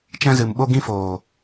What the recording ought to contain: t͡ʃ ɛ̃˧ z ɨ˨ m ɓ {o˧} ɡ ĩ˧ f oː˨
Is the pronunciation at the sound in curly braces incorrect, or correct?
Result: correct